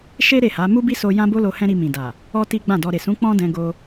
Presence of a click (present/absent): absent